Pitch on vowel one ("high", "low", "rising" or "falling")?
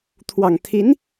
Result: low